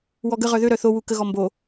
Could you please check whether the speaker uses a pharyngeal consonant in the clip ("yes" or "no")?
no